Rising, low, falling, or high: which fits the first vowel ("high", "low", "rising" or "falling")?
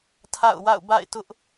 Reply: falling